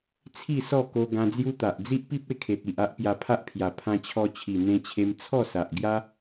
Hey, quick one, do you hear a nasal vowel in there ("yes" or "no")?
yes